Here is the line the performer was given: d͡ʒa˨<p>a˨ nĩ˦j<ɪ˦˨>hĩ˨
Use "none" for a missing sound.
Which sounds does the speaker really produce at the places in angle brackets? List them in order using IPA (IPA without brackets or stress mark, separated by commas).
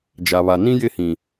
β, ɪ˦˨